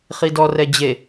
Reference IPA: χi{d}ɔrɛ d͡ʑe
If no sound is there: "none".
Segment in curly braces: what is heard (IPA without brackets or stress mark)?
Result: d